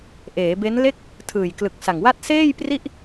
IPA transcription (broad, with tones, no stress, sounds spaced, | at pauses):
ʔ eː˩˦ b e˦˥ n l e˥˩ k̚ | tʰ ɯː˨˩ j k l ɯ˨˩ k̚ s a˨˩ ŋ w a˥˩ t̚ s eː˥˩ j p r i˥˩ ʔ